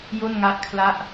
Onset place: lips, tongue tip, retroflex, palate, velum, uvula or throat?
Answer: palate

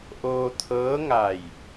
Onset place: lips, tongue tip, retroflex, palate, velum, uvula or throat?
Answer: throat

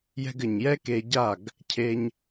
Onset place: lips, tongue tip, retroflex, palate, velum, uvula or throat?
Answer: palate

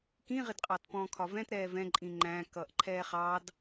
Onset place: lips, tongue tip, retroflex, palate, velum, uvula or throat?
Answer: velum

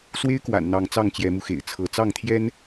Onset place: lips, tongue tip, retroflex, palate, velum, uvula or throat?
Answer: tongue tip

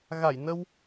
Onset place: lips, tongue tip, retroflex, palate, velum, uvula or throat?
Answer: velum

